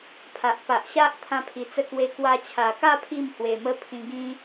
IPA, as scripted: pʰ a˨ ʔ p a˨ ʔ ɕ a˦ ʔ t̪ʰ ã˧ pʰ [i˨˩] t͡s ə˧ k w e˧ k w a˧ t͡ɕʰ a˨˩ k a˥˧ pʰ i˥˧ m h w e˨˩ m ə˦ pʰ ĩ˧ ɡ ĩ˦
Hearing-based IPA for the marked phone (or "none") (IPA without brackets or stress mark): i˨˩